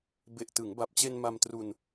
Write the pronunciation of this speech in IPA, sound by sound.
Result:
b e˨˩ ʔ t ɯ˩˦ ŋ b a˨˩ p̚ t͡ɕ e˧ n m a˧ m t r u˧ n

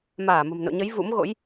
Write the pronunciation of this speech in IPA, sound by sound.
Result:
m aː˧˩ m ə̤˨˩ m n o̰˧˨ ɲ ə˨˦ j v ṵ˧˥ m ɣ o̰˧˥ j

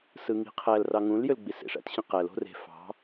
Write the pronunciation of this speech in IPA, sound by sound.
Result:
s ɯ ŋ i̤ qʰ æ l r ɑ ŋ ũ l j ø l ɡ͡b i s ḛ ʂ æ̰ t ɕ ĩ q æ l o̤ r e̤ f ɑ̤

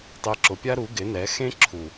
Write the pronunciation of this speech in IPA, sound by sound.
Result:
tˤ e˧ ǁ ʊ˨ pʲ a˦ ɾ u˨˦ ɡ ɪ˨˦ n ɛ˨˦ x ẽ˦ ǁʰ u˨

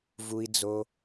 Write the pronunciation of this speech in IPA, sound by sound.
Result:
v u˦ i̯ d͡z o˦

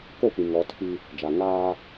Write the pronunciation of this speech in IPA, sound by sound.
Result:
k o˦˨ p ĩ˨ ŋ ɔ˨˦ tʰ i˦ | d͡ʒ a˨ ŋ aː˦

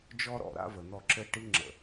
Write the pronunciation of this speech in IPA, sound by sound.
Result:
d͡ʒ ɔ˦ ɾ ɔ̰˨ ɾ a̰˦ v ə˨ n̪ ɔ˦˨ ǁ ɘ˦ ʈ i˦ ŋ͡ǁ ə̰˨

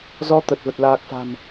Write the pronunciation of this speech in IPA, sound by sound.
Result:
z ɔ˧ t̪ ə˨˩ t̚ v ə˨˩ t̚ l aː˨˩ k̚ f a̤˨˩ m

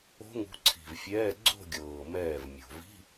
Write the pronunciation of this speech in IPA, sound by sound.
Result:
o̤˦˥ ŋ ṳ˨˦ ǀʰ i̤˨˩ v fʲ ɛː˧˥˧ ɡ͡ǀ o̤˥˧ ɡʲ ɤː˨˩ m ɛː˥˩ v mʲ o̤˨˩ v i̤˧˥˧

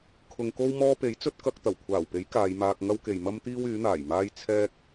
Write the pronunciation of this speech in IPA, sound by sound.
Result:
kʰ ʊ˨ ŋ k o˥ w m ɔː˥ p e˨˥ j t͡s ɵ˥ t̚ k ɐ˧ k̚ t̪ ɐ˨˩ w kʷʰ aː˨˩ w p e˨˥ j k aː˨˧ j m aː˧ k̚ ŋ ɐ˥ w k e˨ j m ɐ˥ m t̪ iː˥ w yː˨˥ n̪ aː˨˩ j m aː˥ j t͡sʰ ɛː˥ k̚

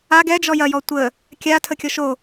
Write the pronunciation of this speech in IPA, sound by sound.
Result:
a ɡ ɛ d͡ʒ ɔ j ɐ j ɔ tʷ ə | kʲ a tʰ ə kʲ ɔ ʃ o

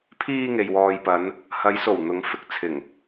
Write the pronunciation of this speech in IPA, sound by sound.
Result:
pʰ iː˧ ŋ e˨ j w ɔː˨ j p ɐ˨˧ n | h ɐ˨˧ j s o˨˩ w n̪ ʊ˨˧ ŋ f ɪ˨˥ k̚ t͡sʰ ɪ˨˩ ŋ

